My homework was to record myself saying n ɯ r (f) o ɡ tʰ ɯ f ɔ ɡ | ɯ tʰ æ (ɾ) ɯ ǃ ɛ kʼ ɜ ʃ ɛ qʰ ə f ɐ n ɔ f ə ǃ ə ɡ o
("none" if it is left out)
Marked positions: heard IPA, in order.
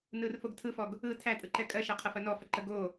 f, tʼ

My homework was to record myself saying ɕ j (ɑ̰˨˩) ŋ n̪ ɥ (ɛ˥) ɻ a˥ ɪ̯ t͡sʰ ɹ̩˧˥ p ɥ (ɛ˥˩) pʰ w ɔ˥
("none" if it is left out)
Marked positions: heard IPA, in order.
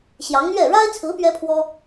ɑ˧˥, ɛ˥˩, ɛ˥

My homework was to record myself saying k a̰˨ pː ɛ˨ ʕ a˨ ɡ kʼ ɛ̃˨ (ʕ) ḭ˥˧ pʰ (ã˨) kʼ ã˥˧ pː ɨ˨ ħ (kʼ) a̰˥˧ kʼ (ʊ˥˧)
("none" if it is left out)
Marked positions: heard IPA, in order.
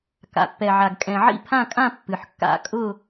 ʕ, ã˥˧, kː, ʊ˥˧

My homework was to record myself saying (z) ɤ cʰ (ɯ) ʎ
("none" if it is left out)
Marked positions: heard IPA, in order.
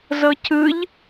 z, ɯ

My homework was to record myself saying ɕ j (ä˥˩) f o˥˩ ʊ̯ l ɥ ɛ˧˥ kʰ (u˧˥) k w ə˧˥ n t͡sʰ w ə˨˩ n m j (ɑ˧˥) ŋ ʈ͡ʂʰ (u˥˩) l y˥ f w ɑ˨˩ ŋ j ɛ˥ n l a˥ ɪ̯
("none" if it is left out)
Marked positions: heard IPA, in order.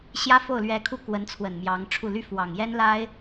ä˥, u˥˩, ɑ˧˥, u˥˩

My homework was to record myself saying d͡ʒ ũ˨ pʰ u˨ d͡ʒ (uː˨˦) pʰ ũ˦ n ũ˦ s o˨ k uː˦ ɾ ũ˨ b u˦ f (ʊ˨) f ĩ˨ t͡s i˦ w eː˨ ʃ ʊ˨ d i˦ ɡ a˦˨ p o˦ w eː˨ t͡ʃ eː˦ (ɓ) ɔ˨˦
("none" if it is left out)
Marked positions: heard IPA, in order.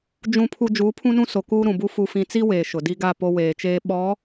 uː˨˦, u˨, ɓ

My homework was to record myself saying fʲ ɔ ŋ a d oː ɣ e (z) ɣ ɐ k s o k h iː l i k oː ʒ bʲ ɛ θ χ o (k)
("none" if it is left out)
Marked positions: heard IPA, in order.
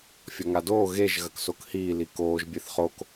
ʒ, k

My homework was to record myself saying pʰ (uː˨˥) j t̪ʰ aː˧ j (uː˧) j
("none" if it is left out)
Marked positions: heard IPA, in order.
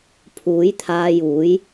uː˨˥, uː˨˥

